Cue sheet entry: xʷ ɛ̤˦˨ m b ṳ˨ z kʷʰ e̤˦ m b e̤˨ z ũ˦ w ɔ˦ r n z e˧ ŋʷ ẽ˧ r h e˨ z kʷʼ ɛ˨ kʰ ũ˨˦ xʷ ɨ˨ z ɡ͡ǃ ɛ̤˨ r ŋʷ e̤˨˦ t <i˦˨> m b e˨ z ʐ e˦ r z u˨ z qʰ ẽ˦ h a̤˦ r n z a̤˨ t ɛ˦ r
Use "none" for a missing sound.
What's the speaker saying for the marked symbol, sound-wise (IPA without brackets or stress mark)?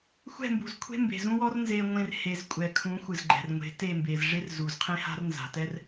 e˦˨